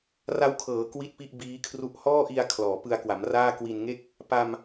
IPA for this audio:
r a˦˥ w kʰ ɤː˩˦ k w i˥˩ t̚ p i˥˩ ʔ b iː˦˥ kʰ r u˥˩ ʔ h ɔː˥˩ ʔ i˧ a̯ kʰ l ɔː˩˦ p ɯ˧ a̯ k w a˩˦ m r aː˥˩ k w i˧ n ŋ e˥˩ k̚ | p a˧ m

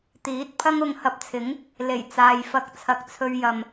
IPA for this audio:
t̪ iː˨˥ t̚ pʰ ɐ˥ ŋ ʊ˧ ŋ h ɐ˧ p̚ t͡sʰ ɪ˨˥ ŋ | l e˨˩ j t͡s aː˨ j f ɐ˧ k̚ t͡sʰ ɐ˧ k̚ t͡sʰ ɵ˧ ɥ j ɐ˨ m

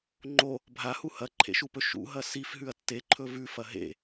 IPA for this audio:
ŋ͡ǃ o | bʱ a h u h ɐ ǃʰ ḛ ʃ u p ɵ ʃ ṵ ɦ ɐ s i f ɦ ʉ ɐ̯ tː e ǃʰ ɵ v ʉ f ɐ ɦ ḛ

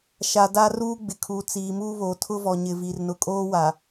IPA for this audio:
ʃ a˨ d a˦ r uː˦ ɡ͡b ɪ˨ kʰ uː˨ t͡s iː˨ m uː˦ β oː˨ tʰ ʊ˦ v ɔ˨ ɲ ɪ˨ v i˨ r n ʊ˨ kʼ oː˦ w a˨

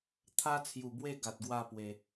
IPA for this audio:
t̪ʰ a˦ t͡sʰ j u˨˩ b w e˥˧ ɡ a˨ t̚ ɡ w a˥˧ p w e˨˩

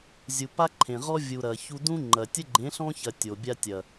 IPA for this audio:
zʲ u˨ p a˦ ǃʰ ẽ˨ ʁ ɔ˦ vʲ u˨ ɾ ɐ˨ ç u˧ d ũ˦ ŋ͡ǃ ɐ˨ tʲ ə˦ ɡ͡ǃ ẽ˨˦ ɬ ɔ̃˦ ç ɐ˨ tʲ o˨ bʲ a˧ tʲ ɐ˨

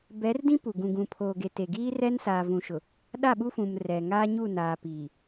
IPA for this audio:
b ɛ˨˦ r d ĩ˦ p u˨ ɡ ũ˨ ɡ ũ˨ pʰ oː˨ ɡ e˨ t e˨ ɡ iː˦ r ɛ˦ n s aː˨ v ũ˨ ʃ ʊ˨ | ɗ a˦˨ ɓ u˦ f ũ˨ m r ɛ˨ ŋ a˦ ɲ u˦˨ n aː˨ p iː˨

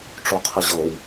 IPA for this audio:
ʈ͡ʂ o qʰ ɪ ʑ ɤ w

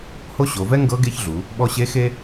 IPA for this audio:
h o˥ ɕ o˩˧ v ɛ˥ ŋ ɡ ɤ˧˥ ɡ e˧˥ ç ɮ u˩˧ | ɓ ɔ˧ ɕ e˧˥ x e˥

